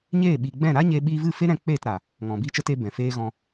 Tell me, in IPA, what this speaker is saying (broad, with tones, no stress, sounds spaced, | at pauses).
ɲ eː˦˨ ɓ i˨ ɡ͡b ɛ̃˦˨ ɾ a˦ ɲ e˧ ɓ iː˧ v ɨ˦˨ f e˦ ɾ ɛ̃˧ k͡p eː˦˨ t ɾ a˨ | ŋ ɔ̃˨ b iː˦ t͡ʃ ə˦ t e˦ b ɛ̃˨ f eː˦ ɣ ɔ̃˧